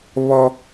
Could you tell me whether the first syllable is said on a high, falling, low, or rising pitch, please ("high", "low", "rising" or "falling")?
high